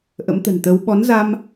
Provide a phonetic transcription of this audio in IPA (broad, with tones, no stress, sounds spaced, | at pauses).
ʔ ə̰˧˥ m t̪ ə̤˨˩ n t̪ ə˨˦ w ɓ ɔ˨˦ n z a˧ m